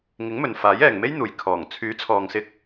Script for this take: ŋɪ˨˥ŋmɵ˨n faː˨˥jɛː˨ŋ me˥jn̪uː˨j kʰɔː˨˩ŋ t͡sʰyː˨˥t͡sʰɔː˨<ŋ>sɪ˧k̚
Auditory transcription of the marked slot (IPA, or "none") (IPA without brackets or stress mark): ŋ